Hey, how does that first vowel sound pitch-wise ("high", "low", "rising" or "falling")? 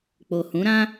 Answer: low